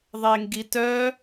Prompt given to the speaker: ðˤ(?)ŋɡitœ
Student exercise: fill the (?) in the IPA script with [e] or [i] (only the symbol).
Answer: e